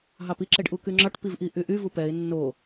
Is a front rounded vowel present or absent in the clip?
present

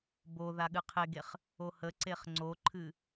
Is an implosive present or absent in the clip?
present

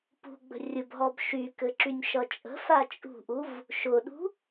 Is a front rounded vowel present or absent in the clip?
present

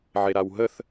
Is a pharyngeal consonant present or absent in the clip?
present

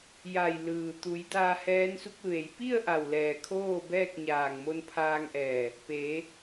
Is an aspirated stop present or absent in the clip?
present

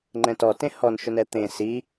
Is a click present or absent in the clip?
present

